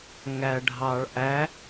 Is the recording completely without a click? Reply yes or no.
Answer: yes